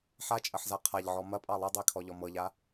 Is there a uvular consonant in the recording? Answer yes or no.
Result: yes